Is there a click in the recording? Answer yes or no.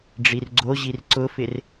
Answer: yes